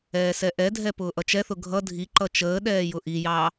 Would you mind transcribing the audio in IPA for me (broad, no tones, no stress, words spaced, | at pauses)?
ɛːsɛʔɛdʱɛ pʊːʔʌt͡ʃɛθʊ ɡʱʌ dʱiǃʌ t͡ʃəː ɗɛːjʊʔijɑ